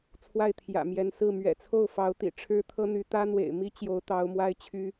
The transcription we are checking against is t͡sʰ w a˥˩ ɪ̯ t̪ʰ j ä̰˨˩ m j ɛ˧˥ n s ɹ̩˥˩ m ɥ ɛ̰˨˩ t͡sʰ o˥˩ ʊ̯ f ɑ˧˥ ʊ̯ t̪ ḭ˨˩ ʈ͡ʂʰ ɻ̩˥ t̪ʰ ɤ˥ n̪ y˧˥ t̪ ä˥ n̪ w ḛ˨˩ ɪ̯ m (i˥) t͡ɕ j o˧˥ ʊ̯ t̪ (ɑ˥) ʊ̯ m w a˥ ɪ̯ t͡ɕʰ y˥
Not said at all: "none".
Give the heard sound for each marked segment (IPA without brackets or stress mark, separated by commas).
i˥, ɑ˧˥